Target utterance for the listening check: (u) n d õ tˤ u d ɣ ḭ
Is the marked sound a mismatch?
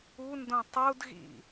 no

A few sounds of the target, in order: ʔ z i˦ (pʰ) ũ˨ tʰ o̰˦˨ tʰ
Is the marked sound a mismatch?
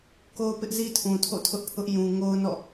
yes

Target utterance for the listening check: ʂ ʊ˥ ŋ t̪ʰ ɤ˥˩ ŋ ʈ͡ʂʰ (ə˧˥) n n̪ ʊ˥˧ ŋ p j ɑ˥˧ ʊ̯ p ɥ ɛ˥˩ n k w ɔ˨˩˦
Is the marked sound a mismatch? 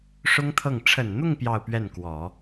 yes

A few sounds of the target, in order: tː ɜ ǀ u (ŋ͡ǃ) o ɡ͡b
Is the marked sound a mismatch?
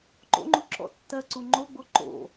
no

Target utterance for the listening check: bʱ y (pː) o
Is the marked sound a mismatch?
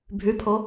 yes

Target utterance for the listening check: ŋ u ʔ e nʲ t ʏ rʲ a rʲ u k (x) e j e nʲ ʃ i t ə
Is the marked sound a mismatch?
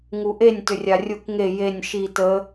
yes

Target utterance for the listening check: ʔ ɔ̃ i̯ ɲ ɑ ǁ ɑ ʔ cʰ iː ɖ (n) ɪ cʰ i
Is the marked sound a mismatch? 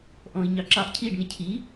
no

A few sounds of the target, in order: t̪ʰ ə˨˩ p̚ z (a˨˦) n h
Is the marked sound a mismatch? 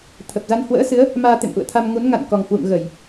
yes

